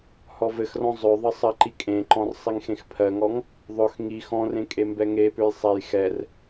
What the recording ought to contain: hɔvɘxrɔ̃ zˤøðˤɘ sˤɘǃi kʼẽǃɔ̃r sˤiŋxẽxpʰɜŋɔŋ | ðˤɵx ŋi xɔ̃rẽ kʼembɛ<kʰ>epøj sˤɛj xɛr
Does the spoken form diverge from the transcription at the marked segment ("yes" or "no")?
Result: yes